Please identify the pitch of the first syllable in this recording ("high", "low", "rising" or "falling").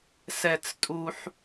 high